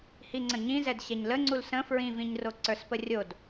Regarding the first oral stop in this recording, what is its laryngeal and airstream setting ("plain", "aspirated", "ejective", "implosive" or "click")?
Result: click